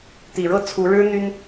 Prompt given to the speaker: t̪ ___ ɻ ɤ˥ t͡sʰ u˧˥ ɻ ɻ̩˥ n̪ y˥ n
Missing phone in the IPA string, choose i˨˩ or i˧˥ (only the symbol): i˨˩